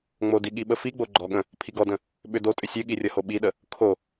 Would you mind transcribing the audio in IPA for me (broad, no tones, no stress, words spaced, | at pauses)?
ŋ͡modiɠi ɓəfiɡ͡bo ɡ͡ǃɔɠə̃ | pʰiɡɔdə̃ | ɓʏdotʼʏ sʲɨɠirʲʌho ɓiɗə | kʰo